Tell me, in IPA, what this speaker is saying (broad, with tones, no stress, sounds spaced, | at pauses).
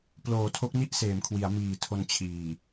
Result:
p l oː˩˦ tʰ o˦˥ k̚ n i˥˩ ʔ s eː˩˦ m kʰ w i˩˦ a̯ m iː˨˩ tʰ o˧ n t͡ɕʰ iː˨˩